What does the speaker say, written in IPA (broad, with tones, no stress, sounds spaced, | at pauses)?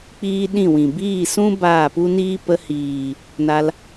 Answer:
k͡p iː˧ ɗ ĩ˦˨ w ĩ˨ b iː˦˨ s ũ˦ b aː˦˨ p u˦ n iː˦ p ə˧ h iː˨ | n a˧ l